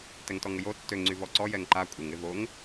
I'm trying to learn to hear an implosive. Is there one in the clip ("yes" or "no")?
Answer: no